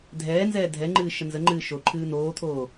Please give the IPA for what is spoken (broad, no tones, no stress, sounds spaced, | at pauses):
dʱ ɛː n z ɛː dʱ ɛ ŋ͡ǃ ɨː ʃ ə n z ə ŋ͡ǃ ɨː ʃ o ǃʰ ɨː n̪ oː t̪ʰ oː